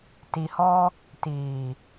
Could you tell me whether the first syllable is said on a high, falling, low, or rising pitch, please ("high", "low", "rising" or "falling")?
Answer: low